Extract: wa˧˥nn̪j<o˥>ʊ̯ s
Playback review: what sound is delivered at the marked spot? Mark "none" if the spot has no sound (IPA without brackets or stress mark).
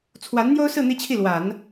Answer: o˥